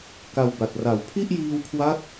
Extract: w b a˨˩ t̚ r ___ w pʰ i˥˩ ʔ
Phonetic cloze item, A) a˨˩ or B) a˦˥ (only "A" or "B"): A